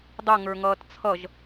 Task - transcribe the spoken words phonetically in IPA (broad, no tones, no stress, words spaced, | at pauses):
dˤʌ ŋə˞ŋʌːtt͡sʰʌʒ